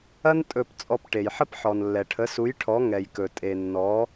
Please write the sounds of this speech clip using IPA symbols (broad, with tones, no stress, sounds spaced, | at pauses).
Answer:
ɐ˥ n tʼ ɵ˧˩ p t͡sʼ ɔ˧˩ p ʈ e˩ j ħ ə˥˨ p ħ ɔ˩ n lː ɛ˩ ʈʰ ə˩˥ s u˩˥ j ʈʰ ɔ˩˥ ŋ ɛ˩ j k ɵ˩ tʼ e˩ nː ɔ˩˥